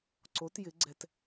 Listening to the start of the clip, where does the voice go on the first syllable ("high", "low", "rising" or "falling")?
rising